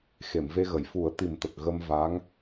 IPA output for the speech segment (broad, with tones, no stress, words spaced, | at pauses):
xe˨˩˨mve˧ɣə˨˩˨j fu˨˩˦ə̯t̪i˨˩mt̪ə˨˩k̚ ɣə˧mva˧˥ŋ